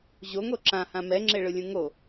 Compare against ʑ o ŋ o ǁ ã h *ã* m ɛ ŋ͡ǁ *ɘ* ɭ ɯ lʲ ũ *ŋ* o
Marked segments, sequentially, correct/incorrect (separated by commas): correct, incorrect, correct